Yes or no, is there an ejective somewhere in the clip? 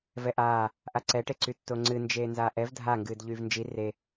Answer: no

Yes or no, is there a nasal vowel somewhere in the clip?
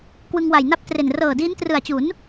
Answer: no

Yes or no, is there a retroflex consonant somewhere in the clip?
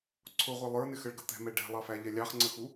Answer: yes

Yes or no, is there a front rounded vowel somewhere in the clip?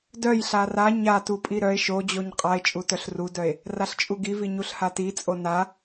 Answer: yes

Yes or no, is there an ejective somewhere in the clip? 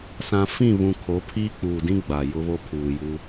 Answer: no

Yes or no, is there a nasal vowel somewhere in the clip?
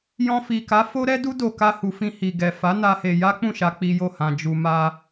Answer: yes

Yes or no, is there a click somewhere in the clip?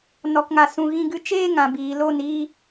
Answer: no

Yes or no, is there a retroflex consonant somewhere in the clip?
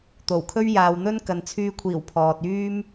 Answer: no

